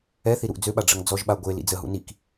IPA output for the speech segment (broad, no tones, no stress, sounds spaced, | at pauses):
ɛ θ i ɾ u ʔ d͡z ø ɓ a ɖ͡ʐ ə ŋ d͡z ɔ ʒ ɓ a ɡʷ e l ḭ d͡z ə ɦ ṵ n i k